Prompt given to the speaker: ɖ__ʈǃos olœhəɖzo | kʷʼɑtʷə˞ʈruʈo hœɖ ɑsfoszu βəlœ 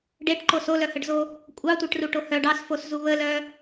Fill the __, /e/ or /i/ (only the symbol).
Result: e